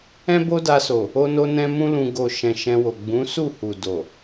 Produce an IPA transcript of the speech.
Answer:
ɛ̃˦ b o˦ d a˧ s o˨ | o˧ n o˧ n ɛ̃˧ m ũ˦ l ũ˧ ɡ o˨ ʃ ɛ̃˨ ʃ ɛ̃˧ w o˨ ɡ͡b ũ˨˦ s u˦˨ h u˨ d o˨

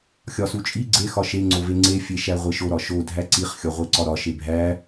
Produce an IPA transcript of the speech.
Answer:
xʲ ɒ s u t͡ʃʼ i ɡ͡ǀ e x ɒ ʃ e ŋ͡ǀ o v e ŋ͡ǀ e fʲ e ʃ æ ʁʷ e ʃ o ɾ ɒ ʃ o dʱ æ ǀ i χ xʲ ɒ ʁʷ e ǀ ɒ ɾ ɒ ʃ e bʱ æ

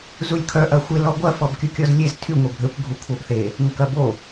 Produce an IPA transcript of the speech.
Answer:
z u lʲ kʰ œ ʔ ɐ xʷ ɪ l ɔ ɡʷ ɐ f ɔ b kʲ u kʲ ɔ z lʲ e z tʰ y ŋʷ e bʱ ø kʷ ɡʱ u kʷʰ ɐ b θ e | ŋ ɐ k ɐ b o

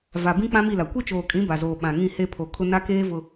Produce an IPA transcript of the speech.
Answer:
v a˨ b ĩ˦ k͡p ã˦ m i˦˨ l a˨ kʷ i˦ t͡ʃ oː˨ kʼ ĩ˨˦ b a˨ z oː˨ ɓ ã˨ ŋ ĩ˦˨ h e˦ pʰ o˨ kʰ ʊ˦ n a˦ k eː˦ v ʊ˨

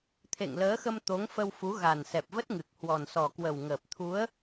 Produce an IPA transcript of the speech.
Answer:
t̪ʰ ḛ˧˨ ŋ l əː˨˦ x ə˧ m t̪ o˨˦ ŋ f ə˧ w f u˨˦ ɣ a˨˩ n s ɛ˨˩ p̚ v ə˦˥ t̚ ŋ ɨ˨˩ k̚ h w ɔ˨˩ n s ɔ˨˩ k w ə˨˩ w ŋ əː˨˩ p̚ t̪ʰ u˨˦ ə̯

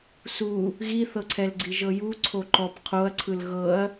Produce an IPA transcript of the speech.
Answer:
s u | ɣ i θ ɤ ǀʰ ɛ l ɡ͡ǀ i ʒ ɤ j u ǀʰ o ǃ ɔ p qʰ o ɐ̯ ǀʰ ɯ l ɣ ɤ ɐ̯

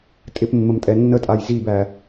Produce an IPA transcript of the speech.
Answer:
tʼ ɪ p mː ə m tʼ ɛ nː ə tʼ a j z i b æ

